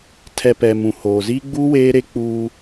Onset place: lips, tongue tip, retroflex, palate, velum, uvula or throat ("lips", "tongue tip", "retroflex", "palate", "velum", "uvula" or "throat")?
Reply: tongue tip